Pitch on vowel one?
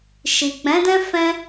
low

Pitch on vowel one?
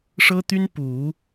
high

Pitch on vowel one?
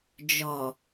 low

